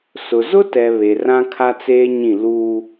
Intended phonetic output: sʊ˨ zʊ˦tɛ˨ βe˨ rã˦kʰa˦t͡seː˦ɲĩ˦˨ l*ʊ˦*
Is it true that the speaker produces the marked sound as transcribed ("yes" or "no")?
no